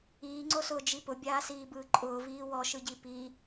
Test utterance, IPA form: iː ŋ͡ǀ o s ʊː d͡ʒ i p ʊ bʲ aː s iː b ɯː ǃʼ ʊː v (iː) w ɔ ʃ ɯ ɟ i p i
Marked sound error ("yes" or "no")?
no